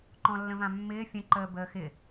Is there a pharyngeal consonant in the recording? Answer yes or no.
no